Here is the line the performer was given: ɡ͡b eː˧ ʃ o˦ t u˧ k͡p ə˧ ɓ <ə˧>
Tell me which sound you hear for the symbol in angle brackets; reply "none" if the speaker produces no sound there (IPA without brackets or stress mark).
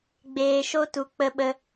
ə˧